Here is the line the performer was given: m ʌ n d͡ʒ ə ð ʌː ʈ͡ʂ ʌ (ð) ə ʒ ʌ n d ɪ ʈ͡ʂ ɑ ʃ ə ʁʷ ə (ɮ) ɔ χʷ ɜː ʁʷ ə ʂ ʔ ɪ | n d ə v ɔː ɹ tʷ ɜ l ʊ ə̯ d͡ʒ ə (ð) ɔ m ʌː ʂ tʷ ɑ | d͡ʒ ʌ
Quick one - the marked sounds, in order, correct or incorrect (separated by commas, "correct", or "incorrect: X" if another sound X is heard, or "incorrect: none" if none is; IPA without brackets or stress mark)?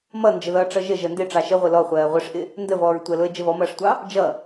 incorrect: ʒ, incorrect: l, incorrect: v